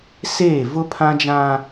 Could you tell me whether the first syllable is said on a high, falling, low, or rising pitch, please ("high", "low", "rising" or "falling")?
falling